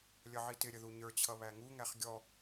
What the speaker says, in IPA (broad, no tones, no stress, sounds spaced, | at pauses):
lʲ ʌ ʕ i t ɪ ɾʲ ə ð u ɲ ə˞ t͡ɕʰ ʌ β æ ŋ u ŋ æ χ ɡʲ ɔ